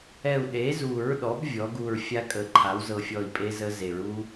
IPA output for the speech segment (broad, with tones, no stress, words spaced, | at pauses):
ɛ˧˩u̯ɗe˩˥zu˨˩˦ɹɗɔ˩˥b vʲɔ˩˥ɡu˧˩ɹ fʲa˦˥kʼə˨˩˦ ǃʰa˩˥wzɤ˧˩fʲɔ˧˩i̯ pʼe˦˥zə˦˥ze˨˩˦ɹ u˦˥